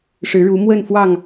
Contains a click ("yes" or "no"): no